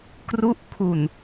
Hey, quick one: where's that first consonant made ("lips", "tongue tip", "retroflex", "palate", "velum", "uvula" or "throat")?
velum